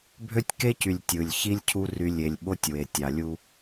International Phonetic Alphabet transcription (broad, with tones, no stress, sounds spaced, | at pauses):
bʱ ø˦ tʲ k e˦ c y˨ lʲ tʲ ɯ˨ lʲ ç i˦ lʲ cʰ u˦ r y˦ lʲ e˨ lʲ ɓ o˦ tʲ w e˨ tʲ ɑ˨ lʲ u˦